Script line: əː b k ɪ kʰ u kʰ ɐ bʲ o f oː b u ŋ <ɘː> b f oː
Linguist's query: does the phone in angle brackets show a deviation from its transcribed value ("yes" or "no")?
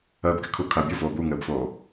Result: no